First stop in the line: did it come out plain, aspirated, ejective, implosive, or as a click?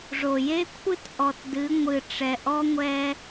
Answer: aspirated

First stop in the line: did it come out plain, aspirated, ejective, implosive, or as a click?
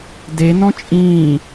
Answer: plain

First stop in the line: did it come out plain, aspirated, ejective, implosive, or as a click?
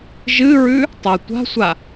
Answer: plain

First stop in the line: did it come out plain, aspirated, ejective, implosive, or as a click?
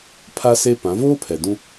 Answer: aspirated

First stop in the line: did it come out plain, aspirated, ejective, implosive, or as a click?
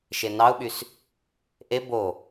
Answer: implosive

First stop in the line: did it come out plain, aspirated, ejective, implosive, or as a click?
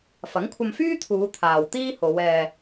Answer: aspirated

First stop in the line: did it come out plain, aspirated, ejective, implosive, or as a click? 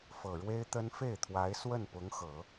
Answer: plain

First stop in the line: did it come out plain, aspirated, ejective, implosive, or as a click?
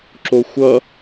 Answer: click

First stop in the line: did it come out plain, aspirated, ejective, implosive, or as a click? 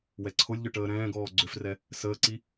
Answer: click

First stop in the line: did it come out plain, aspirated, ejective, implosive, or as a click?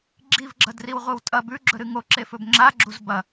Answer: click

